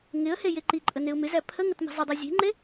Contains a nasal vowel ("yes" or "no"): no